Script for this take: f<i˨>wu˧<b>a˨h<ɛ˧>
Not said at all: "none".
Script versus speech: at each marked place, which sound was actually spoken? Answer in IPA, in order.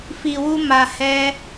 i˨, m, ɛ˧

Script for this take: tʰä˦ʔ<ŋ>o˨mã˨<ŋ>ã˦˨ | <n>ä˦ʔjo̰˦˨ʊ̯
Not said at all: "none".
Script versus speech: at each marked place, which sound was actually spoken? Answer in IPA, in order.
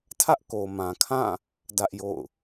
k, kʰ, d

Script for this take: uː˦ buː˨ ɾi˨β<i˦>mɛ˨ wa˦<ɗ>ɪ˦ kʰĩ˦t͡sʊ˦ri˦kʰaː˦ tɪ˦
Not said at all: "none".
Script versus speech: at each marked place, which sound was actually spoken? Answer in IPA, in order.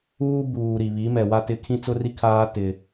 i˨˦, t

